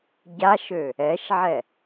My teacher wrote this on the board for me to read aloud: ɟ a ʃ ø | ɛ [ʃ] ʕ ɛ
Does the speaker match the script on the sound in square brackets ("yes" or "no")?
yes